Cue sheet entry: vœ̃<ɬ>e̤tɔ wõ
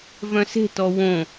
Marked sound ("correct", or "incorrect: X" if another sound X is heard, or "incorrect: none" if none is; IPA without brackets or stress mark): incorrect: s